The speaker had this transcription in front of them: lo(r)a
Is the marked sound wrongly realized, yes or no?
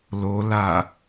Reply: yes